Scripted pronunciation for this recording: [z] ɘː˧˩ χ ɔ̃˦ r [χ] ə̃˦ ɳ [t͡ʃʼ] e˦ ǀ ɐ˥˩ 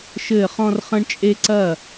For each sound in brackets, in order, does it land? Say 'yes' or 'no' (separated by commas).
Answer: no, yes, yes